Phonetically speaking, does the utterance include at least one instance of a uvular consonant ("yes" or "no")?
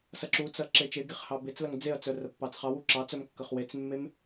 yes